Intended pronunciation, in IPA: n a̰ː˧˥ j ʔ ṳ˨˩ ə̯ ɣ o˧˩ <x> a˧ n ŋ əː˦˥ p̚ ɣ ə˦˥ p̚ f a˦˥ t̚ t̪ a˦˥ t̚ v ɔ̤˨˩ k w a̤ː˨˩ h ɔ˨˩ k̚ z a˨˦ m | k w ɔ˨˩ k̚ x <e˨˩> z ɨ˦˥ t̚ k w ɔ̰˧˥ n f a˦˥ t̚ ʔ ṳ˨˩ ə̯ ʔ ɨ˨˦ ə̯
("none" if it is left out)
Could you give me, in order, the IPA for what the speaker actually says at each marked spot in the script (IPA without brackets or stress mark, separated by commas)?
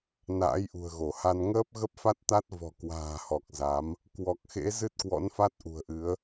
h, ḛ˧˥